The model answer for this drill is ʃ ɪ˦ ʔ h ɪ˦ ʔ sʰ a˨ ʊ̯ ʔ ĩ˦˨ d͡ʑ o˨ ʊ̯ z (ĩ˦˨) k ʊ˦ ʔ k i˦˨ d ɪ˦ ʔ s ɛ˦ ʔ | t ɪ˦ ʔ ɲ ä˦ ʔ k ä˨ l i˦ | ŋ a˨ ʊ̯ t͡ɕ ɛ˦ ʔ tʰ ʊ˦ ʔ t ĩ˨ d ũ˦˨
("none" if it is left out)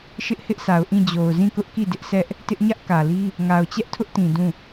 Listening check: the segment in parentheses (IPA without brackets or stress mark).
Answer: ĩ˦˨